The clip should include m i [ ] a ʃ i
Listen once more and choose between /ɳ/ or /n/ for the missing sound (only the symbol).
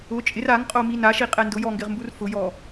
n